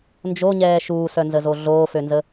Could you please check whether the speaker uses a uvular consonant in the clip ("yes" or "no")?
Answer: no